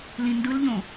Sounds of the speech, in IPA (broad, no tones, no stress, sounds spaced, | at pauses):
l ĩ n d ɯ l ʎ õ